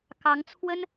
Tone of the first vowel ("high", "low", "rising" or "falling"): rising